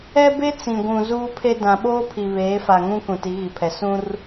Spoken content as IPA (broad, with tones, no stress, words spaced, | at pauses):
ɛ˦be˦ t͡sĩ˨ɡʷũ˨ zuː˦pʰe˦ dã˨ɓoː˦pʰi˨ βeː˨˦fa˨ŋũ˦ kũ˨ti˨˦ɣi˨pʰɛ˨ sũ˦r